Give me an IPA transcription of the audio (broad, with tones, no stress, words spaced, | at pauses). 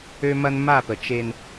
ø˦mɐ˦n ma˦˨pə˨ t͡ʃe˦n